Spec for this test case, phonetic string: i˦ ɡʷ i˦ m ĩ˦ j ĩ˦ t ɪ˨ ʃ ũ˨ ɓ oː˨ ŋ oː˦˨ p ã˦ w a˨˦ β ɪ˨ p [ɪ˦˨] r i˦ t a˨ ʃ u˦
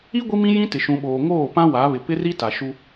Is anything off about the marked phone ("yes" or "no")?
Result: yes